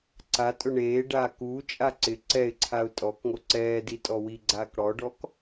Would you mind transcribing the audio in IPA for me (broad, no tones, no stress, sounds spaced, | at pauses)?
ǀ a tʼ ʊ ɳ eː ɖ aː k uː t͡ʃʼ a ǀ ɪ ǀ ɛ ɪ̯ ǀʰ a ʊ̯ tʼ ɔ k ŋ o ǀ ɛː d i tʼ ɔ w i ɡ͡ǀ aː k ɽ ɔ ɖ ɔ k